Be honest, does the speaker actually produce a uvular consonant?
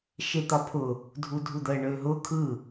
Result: no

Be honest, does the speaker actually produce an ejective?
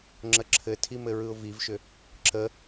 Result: no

